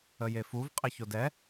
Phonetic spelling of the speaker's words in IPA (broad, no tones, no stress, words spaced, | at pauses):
əjefuv qʼɪçodɛ